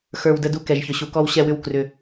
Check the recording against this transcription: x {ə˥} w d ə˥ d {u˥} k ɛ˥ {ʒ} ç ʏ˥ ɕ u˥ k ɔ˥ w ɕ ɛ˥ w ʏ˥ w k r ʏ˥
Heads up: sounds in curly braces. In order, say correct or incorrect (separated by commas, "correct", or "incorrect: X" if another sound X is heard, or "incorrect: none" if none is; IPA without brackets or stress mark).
incorrect: ə˞˥, correct, correct